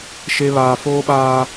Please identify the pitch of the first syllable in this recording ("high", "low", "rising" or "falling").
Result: high